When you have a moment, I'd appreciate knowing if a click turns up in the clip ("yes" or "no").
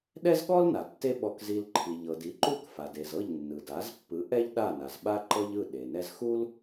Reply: yes